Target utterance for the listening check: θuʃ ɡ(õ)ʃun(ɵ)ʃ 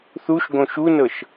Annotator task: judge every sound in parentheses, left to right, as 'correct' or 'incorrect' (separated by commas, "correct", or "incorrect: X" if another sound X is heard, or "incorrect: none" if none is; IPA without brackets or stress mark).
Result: correct, incorrect: ɤ